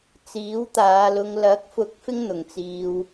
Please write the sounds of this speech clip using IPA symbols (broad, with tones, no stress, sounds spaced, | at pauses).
t͡s iː˨˥ w t̪ aː˨˧ l ʊ˧ ŋ l ɐ˨˥ k̚ f ʊ˨˥ k̚ f ɪ˥ ŋ n̪ ʊ˨ ŋ t͡s iː˧ w